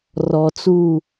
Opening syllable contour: low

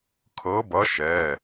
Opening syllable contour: rising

